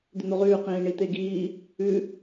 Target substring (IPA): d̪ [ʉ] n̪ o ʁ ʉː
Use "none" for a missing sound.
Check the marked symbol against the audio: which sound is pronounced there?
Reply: ʉ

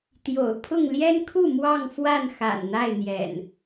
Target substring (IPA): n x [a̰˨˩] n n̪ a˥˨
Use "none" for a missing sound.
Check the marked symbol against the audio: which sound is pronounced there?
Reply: a̰˨˩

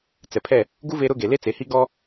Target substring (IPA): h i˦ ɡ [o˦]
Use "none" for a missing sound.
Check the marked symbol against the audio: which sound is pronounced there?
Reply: ɔ˦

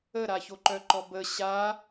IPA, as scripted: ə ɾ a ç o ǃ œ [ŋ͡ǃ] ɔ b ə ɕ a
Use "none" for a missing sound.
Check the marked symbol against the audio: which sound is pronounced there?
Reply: ǃ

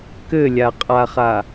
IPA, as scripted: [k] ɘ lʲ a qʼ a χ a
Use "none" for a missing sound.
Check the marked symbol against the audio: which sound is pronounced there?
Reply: k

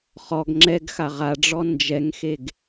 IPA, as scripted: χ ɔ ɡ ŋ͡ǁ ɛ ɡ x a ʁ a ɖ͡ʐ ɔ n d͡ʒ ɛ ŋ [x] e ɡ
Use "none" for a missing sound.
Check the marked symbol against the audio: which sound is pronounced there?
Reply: x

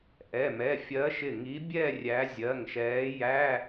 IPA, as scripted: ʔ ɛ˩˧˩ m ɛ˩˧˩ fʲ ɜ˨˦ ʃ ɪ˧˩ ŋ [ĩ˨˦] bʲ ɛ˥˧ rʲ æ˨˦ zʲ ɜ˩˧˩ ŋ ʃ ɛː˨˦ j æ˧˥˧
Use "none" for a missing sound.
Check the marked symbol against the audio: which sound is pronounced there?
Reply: i˨˦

